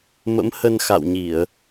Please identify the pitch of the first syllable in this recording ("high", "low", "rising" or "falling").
rising